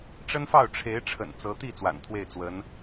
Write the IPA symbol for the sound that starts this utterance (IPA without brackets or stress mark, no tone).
ʈ͡ʂ